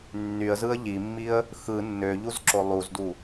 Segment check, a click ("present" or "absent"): present